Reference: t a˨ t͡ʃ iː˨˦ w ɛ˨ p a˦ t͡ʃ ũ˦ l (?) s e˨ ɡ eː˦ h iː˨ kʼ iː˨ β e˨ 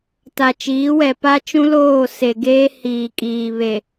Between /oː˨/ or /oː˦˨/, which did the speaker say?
oː˦˨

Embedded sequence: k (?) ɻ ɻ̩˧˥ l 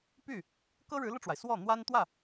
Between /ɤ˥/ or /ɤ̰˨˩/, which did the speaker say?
ɤ˥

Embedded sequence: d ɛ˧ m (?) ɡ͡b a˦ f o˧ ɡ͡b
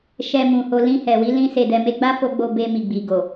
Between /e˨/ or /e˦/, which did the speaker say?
e˦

